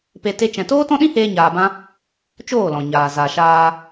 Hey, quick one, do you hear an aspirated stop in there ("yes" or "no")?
no